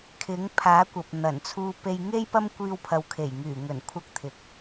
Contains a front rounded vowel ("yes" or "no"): yes